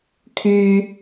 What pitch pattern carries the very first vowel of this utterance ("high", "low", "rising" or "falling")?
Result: high